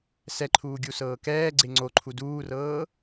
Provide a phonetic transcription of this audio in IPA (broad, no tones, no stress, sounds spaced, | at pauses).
s ɛ ǃʰ uː ɡʲ u s ɤː k ɛː ɡ͡ǀ e ŋ͡ǀ o ǃʰ u d uː r ɤː